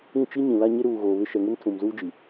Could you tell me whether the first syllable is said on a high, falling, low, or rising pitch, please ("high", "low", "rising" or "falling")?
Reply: falling